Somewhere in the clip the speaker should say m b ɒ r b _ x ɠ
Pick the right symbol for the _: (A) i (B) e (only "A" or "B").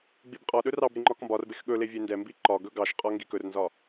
B